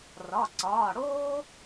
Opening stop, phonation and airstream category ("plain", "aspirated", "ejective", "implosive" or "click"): click